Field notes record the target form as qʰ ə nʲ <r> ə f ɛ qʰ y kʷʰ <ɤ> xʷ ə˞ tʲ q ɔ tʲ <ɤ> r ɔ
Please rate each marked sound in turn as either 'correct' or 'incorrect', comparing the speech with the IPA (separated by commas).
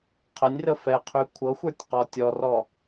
correct, correct, incorrect